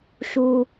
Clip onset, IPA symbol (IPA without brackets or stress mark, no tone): ʃ